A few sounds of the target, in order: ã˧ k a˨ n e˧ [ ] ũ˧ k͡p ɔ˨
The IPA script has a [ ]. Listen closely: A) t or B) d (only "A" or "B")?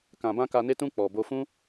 A